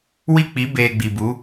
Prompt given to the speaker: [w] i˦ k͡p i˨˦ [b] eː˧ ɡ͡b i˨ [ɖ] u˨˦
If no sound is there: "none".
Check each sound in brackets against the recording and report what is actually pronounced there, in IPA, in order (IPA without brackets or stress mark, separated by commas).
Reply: w, b, b